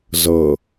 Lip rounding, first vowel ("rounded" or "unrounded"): unrounded